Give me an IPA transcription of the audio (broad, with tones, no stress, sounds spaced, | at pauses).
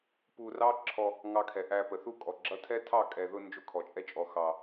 p u˧ r ɑ˦ ǁʰ ɔ˧ | ŋ ɑ˧ kʰ ɛ˨ ʔ æ˧ p ə˨ θ u˦ kʼ ɔ˨ ɡ͡ǁ ʌ˦ tʰ ɛ˦ tʰ ɑ˦˨ kʼ ɛ˨ ð ʊ˧ n d͡ʒ ʊ˧ kʰ ɔ˨ t͡ʃʼ ɛ˧ t͡ʃʼ ɔ˨ x ɑ˨